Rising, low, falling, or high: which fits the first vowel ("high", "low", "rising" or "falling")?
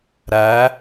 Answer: rising